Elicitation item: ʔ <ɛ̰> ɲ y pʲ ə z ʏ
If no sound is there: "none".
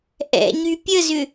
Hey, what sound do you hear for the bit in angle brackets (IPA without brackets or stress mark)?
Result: ɛ̰